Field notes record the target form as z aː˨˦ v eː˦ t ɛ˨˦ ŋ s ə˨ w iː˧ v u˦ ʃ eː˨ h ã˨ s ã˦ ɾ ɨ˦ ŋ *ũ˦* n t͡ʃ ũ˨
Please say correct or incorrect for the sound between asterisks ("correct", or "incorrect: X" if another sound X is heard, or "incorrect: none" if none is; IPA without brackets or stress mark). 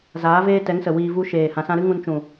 incorrect: ũ˧